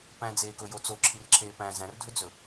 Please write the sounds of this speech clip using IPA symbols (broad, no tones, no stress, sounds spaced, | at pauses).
p æ̃ d͡z eː k ɵ j o t͡s o ǁʰ i r ǁʰ eː p æ̃ z æ̃ r dʱ ɵ d͡z ɵ